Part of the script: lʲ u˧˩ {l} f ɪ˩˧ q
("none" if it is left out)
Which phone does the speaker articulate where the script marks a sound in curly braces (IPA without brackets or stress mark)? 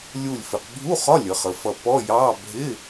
lʲ